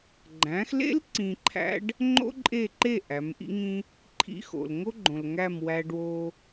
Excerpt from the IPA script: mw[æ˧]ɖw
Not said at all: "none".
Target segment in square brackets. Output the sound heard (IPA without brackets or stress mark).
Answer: æ˧